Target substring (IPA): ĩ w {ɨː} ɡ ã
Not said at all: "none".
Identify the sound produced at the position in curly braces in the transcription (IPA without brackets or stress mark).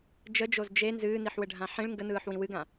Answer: ɨ